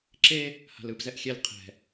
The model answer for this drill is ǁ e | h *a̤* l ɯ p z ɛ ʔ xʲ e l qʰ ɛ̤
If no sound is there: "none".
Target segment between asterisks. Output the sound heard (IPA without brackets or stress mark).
a̤